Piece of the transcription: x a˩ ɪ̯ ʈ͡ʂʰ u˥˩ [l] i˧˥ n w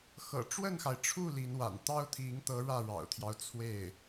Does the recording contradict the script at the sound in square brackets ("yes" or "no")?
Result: no